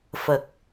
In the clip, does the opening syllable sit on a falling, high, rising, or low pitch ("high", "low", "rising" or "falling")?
low